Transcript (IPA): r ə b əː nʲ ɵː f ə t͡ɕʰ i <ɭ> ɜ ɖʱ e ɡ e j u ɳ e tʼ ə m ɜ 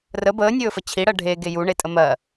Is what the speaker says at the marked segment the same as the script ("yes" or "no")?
no